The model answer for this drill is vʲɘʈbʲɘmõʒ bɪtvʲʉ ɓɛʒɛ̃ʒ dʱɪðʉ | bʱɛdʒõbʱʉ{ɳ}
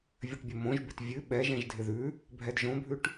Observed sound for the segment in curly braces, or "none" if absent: ʈ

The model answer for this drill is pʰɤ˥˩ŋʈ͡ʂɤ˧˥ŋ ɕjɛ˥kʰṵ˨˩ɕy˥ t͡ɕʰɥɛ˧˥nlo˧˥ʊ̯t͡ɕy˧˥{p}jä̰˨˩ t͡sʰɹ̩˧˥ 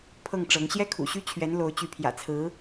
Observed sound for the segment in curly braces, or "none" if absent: pʰ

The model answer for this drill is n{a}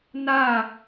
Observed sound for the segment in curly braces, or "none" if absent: a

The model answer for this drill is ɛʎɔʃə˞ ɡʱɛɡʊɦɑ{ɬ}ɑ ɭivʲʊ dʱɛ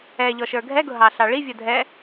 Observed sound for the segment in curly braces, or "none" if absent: ɬ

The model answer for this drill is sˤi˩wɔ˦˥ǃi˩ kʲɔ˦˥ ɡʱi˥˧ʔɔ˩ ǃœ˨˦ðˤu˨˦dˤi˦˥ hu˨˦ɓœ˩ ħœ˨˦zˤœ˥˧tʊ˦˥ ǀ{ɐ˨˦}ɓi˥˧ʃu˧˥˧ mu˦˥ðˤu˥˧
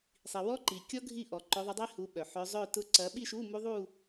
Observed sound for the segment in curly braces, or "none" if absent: ɐ˨˦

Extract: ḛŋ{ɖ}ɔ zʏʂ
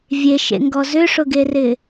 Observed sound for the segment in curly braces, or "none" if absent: ɡ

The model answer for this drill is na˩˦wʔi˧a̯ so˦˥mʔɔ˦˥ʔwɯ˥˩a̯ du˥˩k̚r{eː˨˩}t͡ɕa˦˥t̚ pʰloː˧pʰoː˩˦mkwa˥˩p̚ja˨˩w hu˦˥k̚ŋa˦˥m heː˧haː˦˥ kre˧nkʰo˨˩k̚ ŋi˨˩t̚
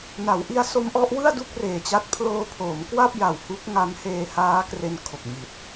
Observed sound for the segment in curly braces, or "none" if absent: eː˨˩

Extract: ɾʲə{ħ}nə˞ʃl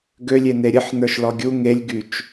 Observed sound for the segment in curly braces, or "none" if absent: ħ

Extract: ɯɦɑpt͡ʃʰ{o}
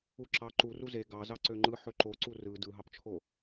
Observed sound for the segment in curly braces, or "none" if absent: o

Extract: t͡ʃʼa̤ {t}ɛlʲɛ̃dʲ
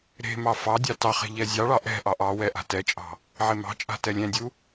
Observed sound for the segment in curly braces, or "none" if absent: t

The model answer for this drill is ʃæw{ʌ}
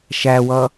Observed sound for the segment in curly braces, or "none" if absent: ʌ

